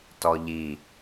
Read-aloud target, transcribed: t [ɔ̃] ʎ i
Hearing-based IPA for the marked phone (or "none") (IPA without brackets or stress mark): ɔ